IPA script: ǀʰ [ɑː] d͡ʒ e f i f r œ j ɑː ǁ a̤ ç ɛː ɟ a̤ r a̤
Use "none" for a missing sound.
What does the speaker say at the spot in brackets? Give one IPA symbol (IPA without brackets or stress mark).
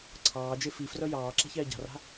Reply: ɑː